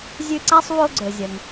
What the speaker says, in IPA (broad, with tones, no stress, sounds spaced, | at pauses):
zʲ ʉ˥ ǀ a˥ sˤ w o˥ ɡ͡ǀ ɵ˩ zʲ ɐ˩ ŋ